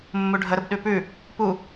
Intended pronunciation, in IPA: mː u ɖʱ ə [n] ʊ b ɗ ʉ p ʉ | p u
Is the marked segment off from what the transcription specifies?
yes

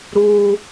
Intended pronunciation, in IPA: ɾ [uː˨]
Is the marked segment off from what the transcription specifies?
yes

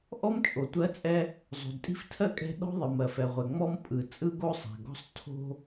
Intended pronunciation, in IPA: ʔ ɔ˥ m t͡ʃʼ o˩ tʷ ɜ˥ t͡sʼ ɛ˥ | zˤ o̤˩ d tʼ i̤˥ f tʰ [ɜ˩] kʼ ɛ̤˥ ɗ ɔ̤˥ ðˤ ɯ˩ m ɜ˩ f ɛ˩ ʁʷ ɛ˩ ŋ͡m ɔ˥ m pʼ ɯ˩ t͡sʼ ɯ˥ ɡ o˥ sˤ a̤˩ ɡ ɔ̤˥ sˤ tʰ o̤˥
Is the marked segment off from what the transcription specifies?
yes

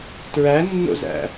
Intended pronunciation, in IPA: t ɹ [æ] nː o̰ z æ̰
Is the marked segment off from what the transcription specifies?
no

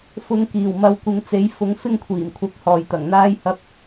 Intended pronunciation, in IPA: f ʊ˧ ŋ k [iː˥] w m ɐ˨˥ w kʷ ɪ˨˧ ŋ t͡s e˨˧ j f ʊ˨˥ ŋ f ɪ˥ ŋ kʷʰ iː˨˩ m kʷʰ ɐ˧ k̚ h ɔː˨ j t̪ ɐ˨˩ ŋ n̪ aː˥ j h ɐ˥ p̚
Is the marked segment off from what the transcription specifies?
yes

